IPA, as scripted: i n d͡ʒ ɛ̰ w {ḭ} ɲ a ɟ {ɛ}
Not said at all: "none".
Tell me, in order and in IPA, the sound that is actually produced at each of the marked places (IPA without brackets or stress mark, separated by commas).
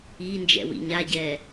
ḭ, ɛ